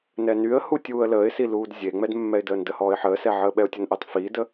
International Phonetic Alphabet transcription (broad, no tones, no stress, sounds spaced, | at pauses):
n ɛ n y ə̯ h u tʲ uː ə̯ l əː ɪ̯ s i l uː d zʲ e ŋ͡m ɛ d mː ɛ ɪ̯ d əː n d ə h ɔː ɪ̯ ħ əː s ɛ ʕ əː ɓ ɛ ʊ̯ tʲ ə n ʔ əː tˤ f iː d ə